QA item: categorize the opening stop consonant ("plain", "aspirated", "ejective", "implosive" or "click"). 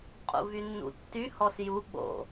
ejective